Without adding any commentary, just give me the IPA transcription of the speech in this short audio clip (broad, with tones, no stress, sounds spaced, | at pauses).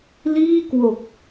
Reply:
l iː˥˩ k w o˨˩ k̚